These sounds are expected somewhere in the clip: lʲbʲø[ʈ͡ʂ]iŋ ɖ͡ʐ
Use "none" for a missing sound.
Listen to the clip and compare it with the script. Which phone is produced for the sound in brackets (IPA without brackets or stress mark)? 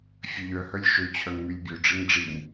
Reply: ɖ͡ʐ